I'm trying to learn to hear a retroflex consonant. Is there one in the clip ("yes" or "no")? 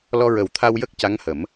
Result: no